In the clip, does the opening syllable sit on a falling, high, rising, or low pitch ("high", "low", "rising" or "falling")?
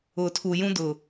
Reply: low